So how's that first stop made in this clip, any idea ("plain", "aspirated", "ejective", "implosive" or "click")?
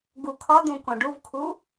plain